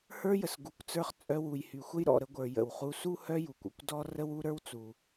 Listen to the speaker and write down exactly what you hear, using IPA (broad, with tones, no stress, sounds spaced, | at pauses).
h ə˞˥ j ə˩ s ɡ u˩ kʷ t͡s ə˞˧ χ t͡sʼ œ˧ w u˩ j h y˩ xʷ ə˥ j ɾ ɔ̰˩ ɾ ə˧ ɡʷ ə˞˩ j ə̰˩ w χ u˧ s u˥ h œ˥ j u˩ kʷ ɔ̰˧ kʷ d ɔ˥ r ə˥ w u˥ ɾ ə˞˥ w t͡s u˩